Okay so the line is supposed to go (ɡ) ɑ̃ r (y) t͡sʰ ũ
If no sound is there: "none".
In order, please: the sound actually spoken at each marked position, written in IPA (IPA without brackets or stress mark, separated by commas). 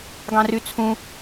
ɡ, y